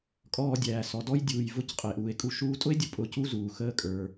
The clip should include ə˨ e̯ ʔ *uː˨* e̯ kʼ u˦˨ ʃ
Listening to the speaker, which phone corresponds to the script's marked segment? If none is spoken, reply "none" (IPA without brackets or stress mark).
uː˨